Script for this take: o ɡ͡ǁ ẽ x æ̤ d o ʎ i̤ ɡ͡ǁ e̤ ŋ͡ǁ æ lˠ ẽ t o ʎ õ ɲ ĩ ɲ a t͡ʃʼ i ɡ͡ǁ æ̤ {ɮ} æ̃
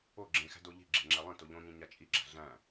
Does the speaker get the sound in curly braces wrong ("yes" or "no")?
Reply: no